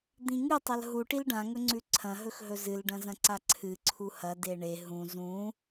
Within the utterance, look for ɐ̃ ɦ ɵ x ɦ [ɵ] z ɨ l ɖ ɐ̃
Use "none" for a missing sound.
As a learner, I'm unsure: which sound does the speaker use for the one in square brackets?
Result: ɵ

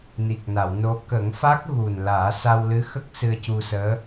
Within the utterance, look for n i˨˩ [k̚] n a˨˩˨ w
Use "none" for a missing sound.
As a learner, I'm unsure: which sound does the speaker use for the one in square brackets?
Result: k̚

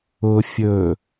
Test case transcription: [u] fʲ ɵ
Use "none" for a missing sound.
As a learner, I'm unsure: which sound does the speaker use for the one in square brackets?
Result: ʊ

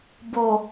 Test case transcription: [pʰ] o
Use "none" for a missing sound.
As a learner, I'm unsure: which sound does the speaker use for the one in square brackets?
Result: b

